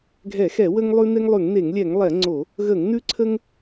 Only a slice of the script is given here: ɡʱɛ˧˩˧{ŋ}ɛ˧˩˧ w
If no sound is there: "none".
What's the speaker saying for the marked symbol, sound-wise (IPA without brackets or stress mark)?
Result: x